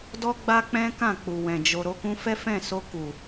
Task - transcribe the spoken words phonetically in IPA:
dɔ˦ɡ͡ba˦ k͡pɛ̃˦kã˦˨ k͡pu˨wɛ̃˨ d͡ʒo˨ ɾo˧kũ˧fɛ˦fɛ̃˦˨ so˧ku˨

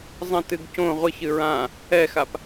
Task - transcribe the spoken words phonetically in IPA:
zˤɐ̃tɨɡ cõ ʁʷɨç ɨɹã | ɛxap

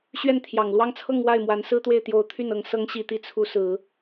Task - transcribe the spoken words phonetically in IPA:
ɕɥɛ˥˩nt̪ʰjɑ˨˩ŋ lwɑ˥˧ŋt͡sʰɤ˥˧ŋ wa˥˩ɪ̯mwa˧˥n sɹ̩˥t̪we˥˩ɪ̯t̪jo˧˥ʊ̯ t̪ʰy˥˩nɤ˧˥ŋ sɤ˧˥ŋɕi˨˩t̪i˧˥ t͡sʰu˧˥ sɹ̩˨˩˦

